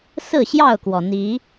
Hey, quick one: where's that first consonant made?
tongue tip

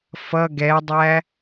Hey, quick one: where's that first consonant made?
lips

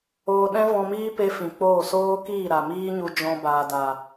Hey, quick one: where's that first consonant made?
tongue tip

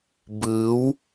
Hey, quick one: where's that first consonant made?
lips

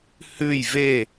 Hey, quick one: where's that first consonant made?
throat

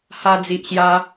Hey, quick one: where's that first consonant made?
throat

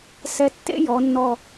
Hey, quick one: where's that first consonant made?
tongue tip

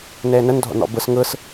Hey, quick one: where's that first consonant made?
tongue tip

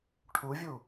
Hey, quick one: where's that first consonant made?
retroflex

